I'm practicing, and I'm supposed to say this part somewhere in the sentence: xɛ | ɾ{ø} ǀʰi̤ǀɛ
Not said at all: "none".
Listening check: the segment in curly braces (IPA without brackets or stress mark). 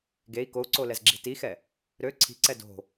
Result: ø